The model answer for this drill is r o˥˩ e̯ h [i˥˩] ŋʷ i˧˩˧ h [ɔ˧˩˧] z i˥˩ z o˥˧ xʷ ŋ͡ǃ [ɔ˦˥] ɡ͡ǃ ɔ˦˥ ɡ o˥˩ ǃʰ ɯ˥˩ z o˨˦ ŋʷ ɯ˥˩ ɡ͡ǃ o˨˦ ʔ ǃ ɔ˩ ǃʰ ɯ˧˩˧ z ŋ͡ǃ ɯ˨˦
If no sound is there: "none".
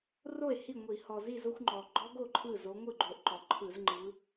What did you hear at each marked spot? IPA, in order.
i˥˩, ɔ˩, ɔ˩

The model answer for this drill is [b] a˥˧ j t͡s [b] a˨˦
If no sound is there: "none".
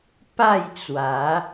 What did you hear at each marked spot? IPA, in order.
p, w

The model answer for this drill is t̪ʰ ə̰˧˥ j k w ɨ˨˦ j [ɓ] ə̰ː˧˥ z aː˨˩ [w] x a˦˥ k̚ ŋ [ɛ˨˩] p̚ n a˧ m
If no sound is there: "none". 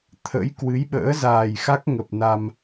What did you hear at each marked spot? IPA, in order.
ɓ, j, ə˨˩

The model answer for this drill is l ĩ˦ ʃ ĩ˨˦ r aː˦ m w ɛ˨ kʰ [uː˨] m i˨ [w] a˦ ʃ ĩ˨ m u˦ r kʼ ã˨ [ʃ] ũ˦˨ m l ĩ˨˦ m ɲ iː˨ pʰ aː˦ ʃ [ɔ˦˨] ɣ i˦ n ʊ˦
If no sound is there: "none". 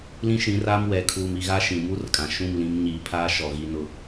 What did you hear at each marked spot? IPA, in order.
uː˨, ɣ, ʃ, ɔ˨

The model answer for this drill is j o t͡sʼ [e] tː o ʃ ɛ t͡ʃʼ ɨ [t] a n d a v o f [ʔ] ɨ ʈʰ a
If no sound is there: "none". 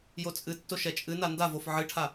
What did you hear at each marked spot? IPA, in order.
ɨ, n, ʕ

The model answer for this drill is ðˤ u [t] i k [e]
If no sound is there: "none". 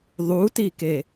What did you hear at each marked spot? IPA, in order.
t, e

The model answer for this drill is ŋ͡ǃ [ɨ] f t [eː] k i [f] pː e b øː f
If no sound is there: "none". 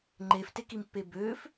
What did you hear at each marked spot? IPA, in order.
e, e, m

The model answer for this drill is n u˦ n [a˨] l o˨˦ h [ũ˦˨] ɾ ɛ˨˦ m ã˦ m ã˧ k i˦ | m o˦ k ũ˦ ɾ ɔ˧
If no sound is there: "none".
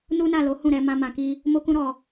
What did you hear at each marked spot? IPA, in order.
a˦˨, ũ˦˨

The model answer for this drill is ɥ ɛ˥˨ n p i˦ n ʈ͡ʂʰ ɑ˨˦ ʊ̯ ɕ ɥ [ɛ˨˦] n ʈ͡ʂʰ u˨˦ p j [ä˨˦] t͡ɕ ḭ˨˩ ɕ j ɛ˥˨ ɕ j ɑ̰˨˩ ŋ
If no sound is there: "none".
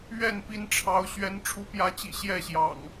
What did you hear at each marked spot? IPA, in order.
ɛ˨˦, ä˨˦

